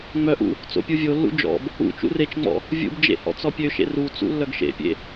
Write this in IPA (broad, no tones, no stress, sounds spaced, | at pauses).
ŋ͡m œ ʔ ṵ | t͡s o̰ pʲ u vʲ o lː ṵ d͡ʒ ɔ̰ b | ṵ t͡ʃ ṵ r e t͡ʃ ŋ͡m ɔ̰ | vʲ ṵ b d͡ʒ ḛ h ɔ̰ t͡s ɔ pʲ ø ʃ ḛ r u t͡s ṵ lː œ ɡ ʃ ḛ pʲ ḛ